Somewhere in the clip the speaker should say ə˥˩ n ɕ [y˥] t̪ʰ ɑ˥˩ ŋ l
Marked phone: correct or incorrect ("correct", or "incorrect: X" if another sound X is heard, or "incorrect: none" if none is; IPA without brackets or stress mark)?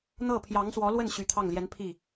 incorrect: y˧˥